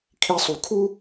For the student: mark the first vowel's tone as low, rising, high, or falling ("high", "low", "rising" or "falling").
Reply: high